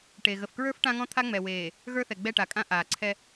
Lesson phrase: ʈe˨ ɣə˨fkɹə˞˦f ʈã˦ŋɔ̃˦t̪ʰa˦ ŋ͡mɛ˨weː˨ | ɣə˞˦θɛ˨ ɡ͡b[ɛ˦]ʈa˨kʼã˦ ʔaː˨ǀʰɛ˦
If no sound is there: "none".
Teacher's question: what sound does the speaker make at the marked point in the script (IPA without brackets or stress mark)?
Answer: ɛ˦˨